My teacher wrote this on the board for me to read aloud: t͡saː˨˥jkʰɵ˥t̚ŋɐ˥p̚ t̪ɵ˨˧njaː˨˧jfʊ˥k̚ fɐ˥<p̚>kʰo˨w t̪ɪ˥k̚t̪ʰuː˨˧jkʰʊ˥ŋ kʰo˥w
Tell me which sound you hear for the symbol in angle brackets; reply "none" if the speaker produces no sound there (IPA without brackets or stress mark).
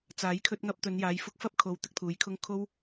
p̚